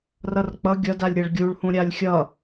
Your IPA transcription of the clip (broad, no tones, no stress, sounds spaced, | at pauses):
r ʌ r k͡p ʌ ɡʲ ʌ d a lʲ ɾʲ a ɭ ɡʲ u ɭ h ũ ɾʲ a lʲ xʲ ʌ